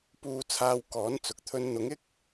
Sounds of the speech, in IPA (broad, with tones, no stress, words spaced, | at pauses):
puː˧t͡sʰaː˧wkɔː˨˥nt͡sʊ˨k̚ t̪ʰɵ˧nn̪ʊ˨˥ŋɪ˥k̚